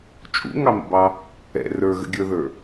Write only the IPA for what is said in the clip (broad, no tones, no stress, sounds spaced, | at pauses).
t͡ʃʼ ṵ ŋ ɑ m ə̰ b ɑ | ɛ̰ r ə˞ ɣ ə̰ ɡʲ ə˞ ð ə˞